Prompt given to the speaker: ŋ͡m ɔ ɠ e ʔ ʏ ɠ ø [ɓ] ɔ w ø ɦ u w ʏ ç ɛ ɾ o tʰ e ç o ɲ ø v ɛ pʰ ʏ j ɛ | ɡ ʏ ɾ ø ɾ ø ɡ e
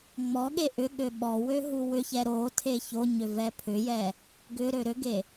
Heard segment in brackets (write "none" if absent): ɓ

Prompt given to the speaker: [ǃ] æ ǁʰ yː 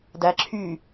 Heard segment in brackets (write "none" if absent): d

